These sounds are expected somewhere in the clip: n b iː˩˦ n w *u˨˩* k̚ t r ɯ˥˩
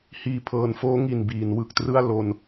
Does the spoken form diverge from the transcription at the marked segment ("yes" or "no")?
yes